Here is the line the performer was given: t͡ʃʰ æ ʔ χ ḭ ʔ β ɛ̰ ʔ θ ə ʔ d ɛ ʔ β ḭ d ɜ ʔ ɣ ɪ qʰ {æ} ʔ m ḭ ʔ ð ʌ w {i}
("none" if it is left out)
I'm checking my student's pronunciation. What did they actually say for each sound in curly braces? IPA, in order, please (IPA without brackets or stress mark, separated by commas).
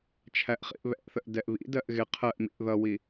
ɜ, i